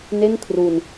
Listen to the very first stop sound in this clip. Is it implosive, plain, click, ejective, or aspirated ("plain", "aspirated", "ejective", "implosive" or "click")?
aspirated